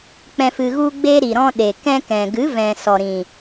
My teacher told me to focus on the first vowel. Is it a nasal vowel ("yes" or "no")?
yes